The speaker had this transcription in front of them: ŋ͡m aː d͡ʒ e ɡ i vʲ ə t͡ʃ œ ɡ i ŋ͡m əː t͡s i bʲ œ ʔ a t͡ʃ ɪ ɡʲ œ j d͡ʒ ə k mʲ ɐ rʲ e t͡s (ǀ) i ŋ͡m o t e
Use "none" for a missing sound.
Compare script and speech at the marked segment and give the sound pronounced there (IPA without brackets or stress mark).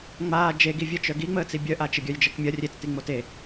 t